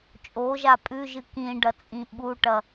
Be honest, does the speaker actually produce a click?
no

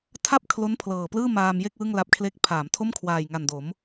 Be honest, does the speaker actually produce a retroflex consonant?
no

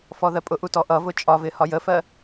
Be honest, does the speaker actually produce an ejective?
yes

